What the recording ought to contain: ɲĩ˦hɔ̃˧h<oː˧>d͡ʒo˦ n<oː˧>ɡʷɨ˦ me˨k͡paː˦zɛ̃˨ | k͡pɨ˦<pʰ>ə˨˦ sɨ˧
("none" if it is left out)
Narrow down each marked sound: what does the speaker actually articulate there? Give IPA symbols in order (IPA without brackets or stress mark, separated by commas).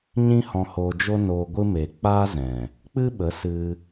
oː˧, oː˧, ɓ